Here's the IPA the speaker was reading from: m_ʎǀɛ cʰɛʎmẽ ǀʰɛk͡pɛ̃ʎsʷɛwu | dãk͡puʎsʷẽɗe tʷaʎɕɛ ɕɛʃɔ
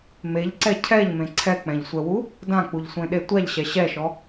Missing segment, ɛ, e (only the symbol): e